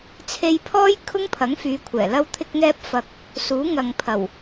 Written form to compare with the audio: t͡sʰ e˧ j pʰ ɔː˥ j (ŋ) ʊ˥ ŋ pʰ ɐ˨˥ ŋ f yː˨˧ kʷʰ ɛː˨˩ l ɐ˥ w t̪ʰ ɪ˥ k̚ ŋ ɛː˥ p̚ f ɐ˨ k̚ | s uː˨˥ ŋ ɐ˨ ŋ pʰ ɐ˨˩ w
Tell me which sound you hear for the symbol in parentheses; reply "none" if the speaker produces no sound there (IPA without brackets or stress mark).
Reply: kʰ